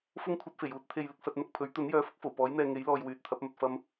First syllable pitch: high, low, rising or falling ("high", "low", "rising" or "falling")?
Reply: high